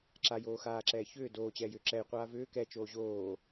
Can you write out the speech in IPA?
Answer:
ǁ a j oː x aː ǁ ɛː ç ʏː d oː t͡ɕ ɛː j ʏ ǁ ɛ j qʷ aː v ʏː k ɛ t͡ʃ oː ʑ oː

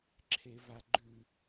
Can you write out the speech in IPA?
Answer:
ǁʰ e v a ɡ͡ǃ ʉ

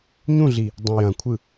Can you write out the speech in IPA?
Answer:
ɲ ũ ɮ i | dˤ ɐ̃ j ɐ̃ kʷʰ ɯ

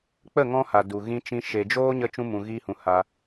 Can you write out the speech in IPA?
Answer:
k͡p ə˦˨ ŋ ɔ̃˧ h a˨ d u˨ ɣ ĩ˧ t͡ʃ ĩ˧ ʃ e˨ d͡ʒ oː˦ ɲ ə˧ t͡ʃ ũ˧ m ũ˨ ɣ iː˧ h ũ˨ h a˧

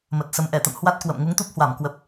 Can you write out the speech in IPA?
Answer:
m ə˨˩ t̚ s ə˨˦ m ʔ ɛ˧˩ t̪ ə̰˧˨ m h w a˦˥ t̚ k w ə̰˧˨ m ŋ u˨˦ ŋ t̪ u˦˥ p̚ h w a˧˩ m k w ə˨˩ p̚

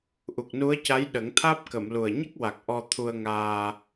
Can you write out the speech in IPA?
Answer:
ʔ u˨˩ k̚ n u˧˥ ə̯ c a˧˥ j ɗ ə˨˩˦ ŋ t̪ʰ aː˦˥ p̚ k ə˨˩˨ m l u˨˩ ə̯ ɲ ə˦˥ k̚ w a˨˩ k̚ ʔ ɔ˧ t̪ʰ u˧ ə̯ ŋ aː˧

